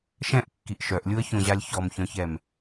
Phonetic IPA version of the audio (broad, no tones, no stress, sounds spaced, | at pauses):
ʃ ɛ̃ ʔ kː i ʔ ʃ œ ʔ lʲ u ə̯ ç õ ʑ a lʲ ç ɔ m ç œ̃ ç ɛ m